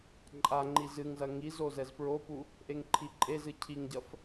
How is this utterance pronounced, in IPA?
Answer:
ǃʼ a ŋ͡ǃ i z ɨ ŋ z ɐ ŋ i z o z ɛ z p ɹ o p u | ʔ e ŋ ǃʰ i ǃʼ e z ɨ cʰ i ŋ ɟ ɐ f

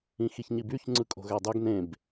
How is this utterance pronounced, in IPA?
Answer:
ĩ x i ç ɲ i b y ç ŋ͡ǀ ɯ kʼ o̤ ɣ æ dˤ ø ɡ n ẽ b

